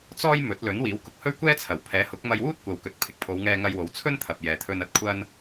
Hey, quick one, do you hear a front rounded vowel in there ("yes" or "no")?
no